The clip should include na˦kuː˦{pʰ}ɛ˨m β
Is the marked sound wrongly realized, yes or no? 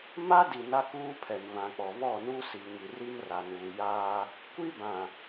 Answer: no